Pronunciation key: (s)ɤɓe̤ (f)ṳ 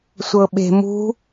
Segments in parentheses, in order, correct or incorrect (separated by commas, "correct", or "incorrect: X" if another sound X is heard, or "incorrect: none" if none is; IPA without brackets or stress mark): incorrect: sʷ, incorrect: m